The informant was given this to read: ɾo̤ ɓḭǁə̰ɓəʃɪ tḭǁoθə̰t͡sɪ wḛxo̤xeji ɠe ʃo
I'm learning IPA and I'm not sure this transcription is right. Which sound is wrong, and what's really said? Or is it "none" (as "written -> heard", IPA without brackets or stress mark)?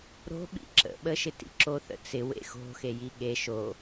none